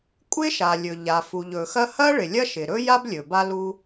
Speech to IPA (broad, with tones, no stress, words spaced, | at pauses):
kʷʼɪ˥ʃa˩lʲɵ˩ ʎa˩fu˩ʎɵ˩xɐ˥ hɐ˥ ɭɪ˩lʲɐ˥ ʃɪ˩ɾɵ˥ja˥b lʲɵ˩ba˥lu˥